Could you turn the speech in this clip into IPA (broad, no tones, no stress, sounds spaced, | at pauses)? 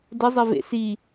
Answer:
d ə zˤ ɘ v ḛ s i